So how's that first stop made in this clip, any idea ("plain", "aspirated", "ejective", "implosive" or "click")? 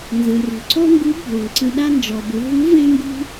click